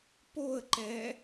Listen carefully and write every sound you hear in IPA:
poə̯ǃɛ

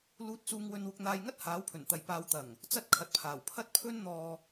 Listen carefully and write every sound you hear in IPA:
luː˧t̚t͡suː˧ŋ wɵ˧nwʊ˧k̚n̪aː˧jŋɐ˥t̚ haː˨˥wpʰɵ˨˩nt̪ɐ˨j paː˨˧wt̪ɐ˨˩ŋ | t͡sɐ˥t̚kʰɐ˨t̚pʰaː˨˩wpʰɐ˥t̚ pʰɵ˥nn̪ɔː˧

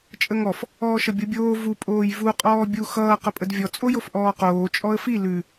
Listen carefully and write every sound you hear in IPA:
t͡ʃʼəŋɔf | ɔːʃʌbʲobʲoː vu pʼoːjvu qʼɔːbʲu xʌː qəpʼədvʲɔ t͡sʼojofʔɔːqoː t͡ʃʼɔə̯fi lʉ

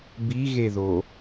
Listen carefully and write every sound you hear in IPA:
biɣeðo

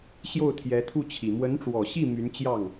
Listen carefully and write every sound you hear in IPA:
ɕjo˥˩ʊ̯t̪ʰjɛ˧˥t̪ʰu˥˩t͡ɕʰi˨˩ mwə˧˥nʈ͡ʂwɔ˨˩ɕi˥˩ my˧˥nt͡ɕjɑ˥˩ŋ

